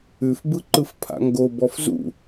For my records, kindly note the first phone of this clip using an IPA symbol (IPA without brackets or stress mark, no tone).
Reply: ʉ